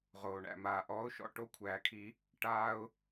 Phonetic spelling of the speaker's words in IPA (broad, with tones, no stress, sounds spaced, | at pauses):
ʁ oː˩ ɳ æ̰˩ m aː˩ ʔ ɔː˨˥ ʊ̯ ʃ ɔ̰˦˨ ʈ o˦˨ kʷʰ æː˩ kʰ i˨˩˦ | ʈ aː˦ ʊ̯